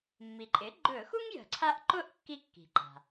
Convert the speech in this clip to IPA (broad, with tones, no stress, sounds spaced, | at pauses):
mː i˩ ǃʼ ɪ˩˥ ɡ͡ǃ ɵ˧˩˧ x u˥ ŋ j ə̤˧˩˧ ǀʰ a˥ ʔ ǃ ʊ˥˧ ʔ kː i˥˧ kː i̤˩ ǃ a̤˩